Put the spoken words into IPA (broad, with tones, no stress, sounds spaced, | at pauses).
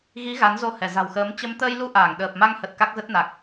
ɣ i˨˦ ɣ a˨˦ n z o˧ h ɛ˧˩ z a̤˨˩ w x əː˨˦ m t͡ɕ ə˨˦ m t̪ əː˧ j l u˧ ʔ aː˧˩ ŋ ɗ əː˨˩ p̚ m a˧ ŋ h ə˨˩ t̚ k a˦˥ k̚ z ə˦˥ t̚ n a˨˩ k̚